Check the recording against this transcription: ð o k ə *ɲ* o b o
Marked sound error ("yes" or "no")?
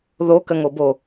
yes